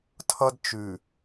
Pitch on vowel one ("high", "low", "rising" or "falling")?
high